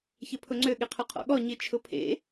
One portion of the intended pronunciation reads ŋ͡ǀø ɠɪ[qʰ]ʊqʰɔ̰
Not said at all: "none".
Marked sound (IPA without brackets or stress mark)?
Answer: qʰ